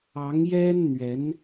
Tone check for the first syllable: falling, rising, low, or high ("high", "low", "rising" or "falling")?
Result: rising